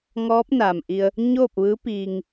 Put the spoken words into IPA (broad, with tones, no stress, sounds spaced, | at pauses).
ŋ ɔː˧˥ p̚ n a˩ m ʔ i˧ ə̯ | ɲ oː˥˨ p̚ ʋ ɯː˧˥ p iː˧ ŋ